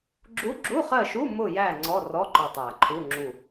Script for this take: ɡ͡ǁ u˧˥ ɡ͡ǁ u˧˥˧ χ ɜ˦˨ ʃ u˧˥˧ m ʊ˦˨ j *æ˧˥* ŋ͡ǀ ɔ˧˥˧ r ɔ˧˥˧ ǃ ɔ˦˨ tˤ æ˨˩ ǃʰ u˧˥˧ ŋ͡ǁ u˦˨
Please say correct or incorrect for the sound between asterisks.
incorrect